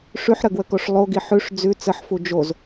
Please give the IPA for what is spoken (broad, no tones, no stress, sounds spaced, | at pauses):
ʂ ʉ ħ ɾ ə ɡ w ə k o ʂ lˠ o ɡ i ħ ʉ ʂ d͡z ʉ t͡s ə ħ f u d͡ʒ o z